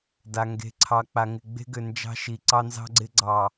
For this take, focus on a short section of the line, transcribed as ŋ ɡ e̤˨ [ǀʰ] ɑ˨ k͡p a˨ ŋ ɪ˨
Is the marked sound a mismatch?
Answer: no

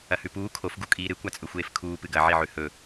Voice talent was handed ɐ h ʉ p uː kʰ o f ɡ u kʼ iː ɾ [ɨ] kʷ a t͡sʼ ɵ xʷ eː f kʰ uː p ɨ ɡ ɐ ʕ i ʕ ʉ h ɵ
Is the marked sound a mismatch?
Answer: no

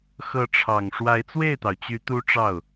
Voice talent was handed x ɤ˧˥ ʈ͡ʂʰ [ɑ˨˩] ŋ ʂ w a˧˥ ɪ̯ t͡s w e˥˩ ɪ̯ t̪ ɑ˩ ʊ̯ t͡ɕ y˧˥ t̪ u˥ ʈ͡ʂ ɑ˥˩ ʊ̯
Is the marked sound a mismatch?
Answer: no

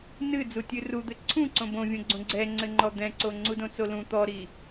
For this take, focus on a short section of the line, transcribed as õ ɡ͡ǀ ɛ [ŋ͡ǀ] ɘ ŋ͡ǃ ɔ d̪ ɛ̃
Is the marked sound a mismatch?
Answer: no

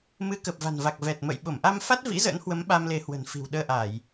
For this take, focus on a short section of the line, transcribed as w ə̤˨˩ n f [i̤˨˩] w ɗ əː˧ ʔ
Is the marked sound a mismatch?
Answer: no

